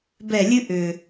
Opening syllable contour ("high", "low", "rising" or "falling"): falling